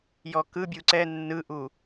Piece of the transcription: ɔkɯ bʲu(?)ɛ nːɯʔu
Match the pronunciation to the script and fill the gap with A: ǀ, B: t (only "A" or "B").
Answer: A